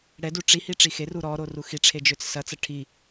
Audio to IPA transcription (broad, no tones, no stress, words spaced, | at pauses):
ɽɛdu ʈ͡ʂihi ʈ͡ʂixeru ɾɔ ɾoruxiʈ͡ʂʰe d͡ʒøt͡ssɐt͡sɐ ʈʰi